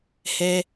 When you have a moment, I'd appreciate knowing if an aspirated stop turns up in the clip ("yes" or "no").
no